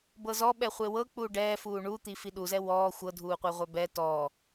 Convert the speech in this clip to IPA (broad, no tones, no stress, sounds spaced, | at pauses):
b ɤ z ɔ ɓ ɛ χʷ e w ɤ k͡p u ɖ ɛː f uː ɳ u t̪ i f i ɗ u z ɛ w ɔː xʷ ɤ dʱ uː qʷ e ʁʷ œ b ɛ t ɔː